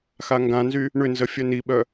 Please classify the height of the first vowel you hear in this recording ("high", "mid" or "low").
low